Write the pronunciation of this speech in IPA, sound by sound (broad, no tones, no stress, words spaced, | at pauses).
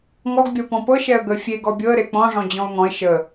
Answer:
ŋɔɡbʲɔ pɔ̃pɤ ʃɛə̯ɡə fʲeɡ ɔbʲɤə̯ ɾek͡pɔ̃ʐɔ̃ d͡ʑɔ̃ʊ̯ŋɔ̃ɪ̯ ʃə